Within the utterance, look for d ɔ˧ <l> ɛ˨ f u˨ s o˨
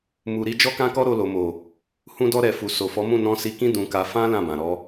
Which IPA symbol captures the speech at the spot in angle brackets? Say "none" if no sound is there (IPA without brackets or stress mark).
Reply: ɾ